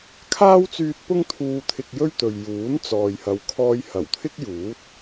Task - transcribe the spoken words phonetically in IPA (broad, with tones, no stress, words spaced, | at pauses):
kʰaː˥wt͡syː˧t̚ pʊ˥ŋt̪ʰuː˧ t̪ʰɪ˧k̚jɵ˥ɥt̪ɵ˨ɥ juː˨˥n t͡sɔː˨jhɐ˨˧wkʰɔː˧j hɐ˨˩wt̪ʰɪ˥k̚juː˨˥t̚